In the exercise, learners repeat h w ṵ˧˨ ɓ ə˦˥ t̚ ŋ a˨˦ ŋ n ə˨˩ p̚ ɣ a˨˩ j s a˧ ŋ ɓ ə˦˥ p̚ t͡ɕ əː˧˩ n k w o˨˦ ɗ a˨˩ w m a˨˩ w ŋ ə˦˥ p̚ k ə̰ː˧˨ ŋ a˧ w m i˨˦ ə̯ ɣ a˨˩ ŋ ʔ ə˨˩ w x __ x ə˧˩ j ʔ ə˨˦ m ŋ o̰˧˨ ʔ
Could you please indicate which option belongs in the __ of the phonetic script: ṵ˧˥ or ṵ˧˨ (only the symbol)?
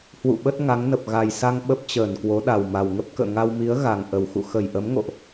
ṵ˧˨